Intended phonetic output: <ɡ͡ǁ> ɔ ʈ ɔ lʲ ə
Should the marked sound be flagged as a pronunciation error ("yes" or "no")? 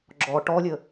no